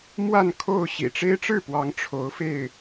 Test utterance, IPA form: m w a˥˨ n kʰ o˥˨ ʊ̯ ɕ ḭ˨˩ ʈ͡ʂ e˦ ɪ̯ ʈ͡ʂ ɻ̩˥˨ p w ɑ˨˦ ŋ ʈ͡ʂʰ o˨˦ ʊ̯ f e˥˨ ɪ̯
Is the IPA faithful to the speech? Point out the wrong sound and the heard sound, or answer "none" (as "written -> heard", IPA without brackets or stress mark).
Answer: none